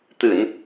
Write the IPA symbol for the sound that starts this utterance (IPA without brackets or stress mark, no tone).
t̪